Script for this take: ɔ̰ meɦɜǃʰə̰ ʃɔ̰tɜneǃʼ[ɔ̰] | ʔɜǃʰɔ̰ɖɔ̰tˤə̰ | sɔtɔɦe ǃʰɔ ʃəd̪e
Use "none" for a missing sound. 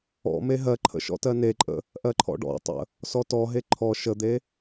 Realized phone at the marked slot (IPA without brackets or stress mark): ə̰